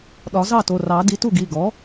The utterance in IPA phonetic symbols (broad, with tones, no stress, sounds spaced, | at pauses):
ɗ ɒ˨˩˦ z ɑ˥˩ t o˩˧˩ r ɑ˨˩˦ d i˩˥ t u˥˩ ɡ i˩˧˩ ɡ ɔ˩˥